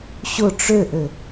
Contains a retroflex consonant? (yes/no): yes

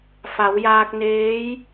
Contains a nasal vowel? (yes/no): no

